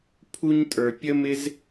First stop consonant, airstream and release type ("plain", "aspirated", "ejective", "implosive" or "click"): aspirated